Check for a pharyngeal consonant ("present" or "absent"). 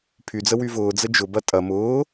absent